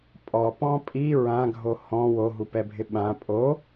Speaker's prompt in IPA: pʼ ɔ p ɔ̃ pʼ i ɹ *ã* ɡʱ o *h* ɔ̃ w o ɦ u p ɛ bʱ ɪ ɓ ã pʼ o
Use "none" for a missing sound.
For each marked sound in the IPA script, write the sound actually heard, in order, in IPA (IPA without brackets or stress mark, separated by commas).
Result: ã, h